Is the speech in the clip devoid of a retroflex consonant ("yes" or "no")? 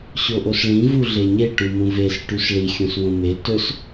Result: no